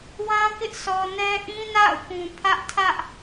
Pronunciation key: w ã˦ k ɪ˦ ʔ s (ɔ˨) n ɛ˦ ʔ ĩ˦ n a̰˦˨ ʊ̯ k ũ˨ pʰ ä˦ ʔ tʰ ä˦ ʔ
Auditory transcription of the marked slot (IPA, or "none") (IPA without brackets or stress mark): ɔ˨